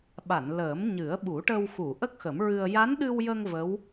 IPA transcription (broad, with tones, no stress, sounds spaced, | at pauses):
ɓ a˨˩˨ n l əː˨˩˦ m ɲ ɨ˨˩˦ ə̯ ɓ u˨˩˦ ʈ ə˧ w x u˨˩˨ ʔ ə˦˥ k̚ x ə˨˩˦ m ɹ ɨ˧ ə̯ j a˧˥ n ɗ ɨ˧ w j ə˧ ŋ v ə˧˥ w